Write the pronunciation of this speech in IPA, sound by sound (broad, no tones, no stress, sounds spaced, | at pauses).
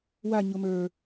w a ɲ ʊ m ə˞